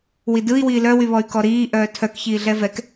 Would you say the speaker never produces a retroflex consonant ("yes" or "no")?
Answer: yes